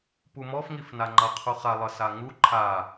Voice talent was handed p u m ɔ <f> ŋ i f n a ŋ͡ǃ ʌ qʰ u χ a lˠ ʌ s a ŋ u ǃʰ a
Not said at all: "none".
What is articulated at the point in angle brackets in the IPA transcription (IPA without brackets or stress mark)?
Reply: f